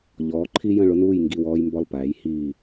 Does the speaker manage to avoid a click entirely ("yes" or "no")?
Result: no